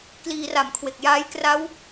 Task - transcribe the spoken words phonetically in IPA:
kliː˧ra˨˩mkʰwe˨˩k̚ jaː˦˥jkra˦˥w

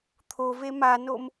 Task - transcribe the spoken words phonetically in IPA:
t̪ʰove manom

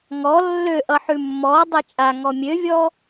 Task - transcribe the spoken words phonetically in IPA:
ŋɔ lːøʔʌ ħʉmːɔ dˤet͡ʃʼaŋɔ mʲøvʲɔ

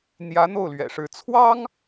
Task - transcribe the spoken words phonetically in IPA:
n̪jä˧˥ n̪o˥˩ʊ̯lɥɛ̰˨˩ʂɻ̩˧˥ t͡sʰwɑ˥ŋ

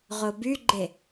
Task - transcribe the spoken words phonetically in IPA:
ʁobyɡ͡ǃe

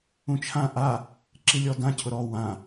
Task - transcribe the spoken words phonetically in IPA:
ũt͡ʃʰã ʔa | ǁilʲɔdã cʰʊɾɔ wã

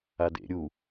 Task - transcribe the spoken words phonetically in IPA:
adḛ ɾʲu

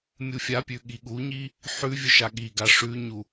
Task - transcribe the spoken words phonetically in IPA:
mʲufʲapʲʉ ɠiɠuɲi | ħʉvʲɵ ʃaɠiɡa ʂʉɲu

